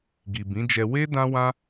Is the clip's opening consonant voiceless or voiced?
voiced